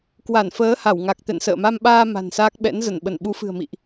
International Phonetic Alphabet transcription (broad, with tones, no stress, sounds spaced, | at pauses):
k w a˧˩ n f əː˨˦ h a˧˩ w ŋ a˨˩ k̚ t̪ ɛ̰˧˨ n s ə̰ː˧˨ m a˧ m ɓ aː˧ m a̤˨˩ n s aː˦˥ k̚ ɓ ɛ̰˧˥ n z ə˧˩ n ɓ ə˧˩ n ɓ u˨˦ f ɨ̤˨˩ ə̯ m ḭ˧˨ ʔ